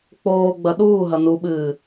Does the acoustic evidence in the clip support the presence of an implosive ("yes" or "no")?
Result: yes